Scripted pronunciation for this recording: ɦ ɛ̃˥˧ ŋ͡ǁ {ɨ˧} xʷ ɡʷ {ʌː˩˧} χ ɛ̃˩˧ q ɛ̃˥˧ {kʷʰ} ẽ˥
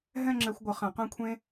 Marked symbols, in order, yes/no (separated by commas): no, no, yes